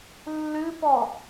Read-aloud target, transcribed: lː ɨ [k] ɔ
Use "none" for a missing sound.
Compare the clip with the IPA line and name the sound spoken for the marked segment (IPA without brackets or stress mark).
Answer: p